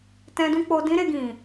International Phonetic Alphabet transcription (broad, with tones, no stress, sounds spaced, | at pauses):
t ɛ̃˧ d ũ˦ k͡p o˧ d ĩ˦ ɾ e˧ ɡ ĩ˨